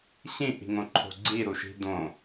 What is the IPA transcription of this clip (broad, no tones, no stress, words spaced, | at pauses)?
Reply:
ɕĩʔi̤ŋõǃʰo̤ ɡ͡ǀiɾuʃi̤ d̪õ